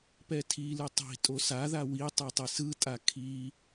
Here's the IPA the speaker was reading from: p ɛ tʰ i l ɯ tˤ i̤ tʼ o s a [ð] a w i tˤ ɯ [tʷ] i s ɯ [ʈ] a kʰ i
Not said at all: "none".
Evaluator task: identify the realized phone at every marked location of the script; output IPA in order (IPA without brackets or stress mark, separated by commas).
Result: ð, tˤ, tʼ